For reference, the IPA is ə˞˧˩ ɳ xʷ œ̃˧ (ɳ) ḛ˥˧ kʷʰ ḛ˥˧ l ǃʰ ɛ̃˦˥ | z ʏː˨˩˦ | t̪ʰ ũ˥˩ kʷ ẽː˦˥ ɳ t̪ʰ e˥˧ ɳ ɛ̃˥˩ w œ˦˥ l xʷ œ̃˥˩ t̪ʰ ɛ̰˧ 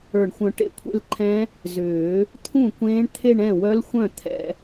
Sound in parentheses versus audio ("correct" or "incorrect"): incorrect